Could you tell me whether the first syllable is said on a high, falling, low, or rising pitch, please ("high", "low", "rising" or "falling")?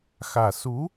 low